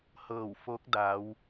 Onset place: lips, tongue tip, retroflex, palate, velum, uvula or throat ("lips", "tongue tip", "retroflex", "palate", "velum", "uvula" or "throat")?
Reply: throat